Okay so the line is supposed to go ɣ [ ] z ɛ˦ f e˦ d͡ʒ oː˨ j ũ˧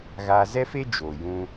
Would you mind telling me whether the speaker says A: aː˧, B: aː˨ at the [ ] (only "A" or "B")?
A